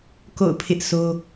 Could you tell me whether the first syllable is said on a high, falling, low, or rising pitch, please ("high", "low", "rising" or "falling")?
falling